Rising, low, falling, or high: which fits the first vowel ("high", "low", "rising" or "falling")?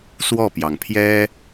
falling